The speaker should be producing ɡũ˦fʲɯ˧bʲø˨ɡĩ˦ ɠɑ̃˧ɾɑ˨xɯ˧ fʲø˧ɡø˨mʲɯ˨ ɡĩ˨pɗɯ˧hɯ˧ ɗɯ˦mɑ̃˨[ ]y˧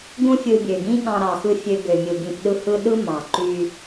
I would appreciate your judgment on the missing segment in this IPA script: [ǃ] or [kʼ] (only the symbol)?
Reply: ǃ